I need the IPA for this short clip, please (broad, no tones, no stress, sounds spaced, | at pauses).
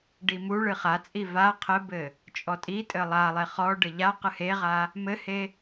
ɖ i m u ɭ ɨ χ a t͡sʼ i v a qʰ ɘ b ɘ | t͡ʃʼ ɔ tʼ i tʼ ɘ lˠ a lˠ e χ ɔ ɖ ɘ ʎ a q ɨ h e ʁ a | m ɘ h e